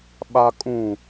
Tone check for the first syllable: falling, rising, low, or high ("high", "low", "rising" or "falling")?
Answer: low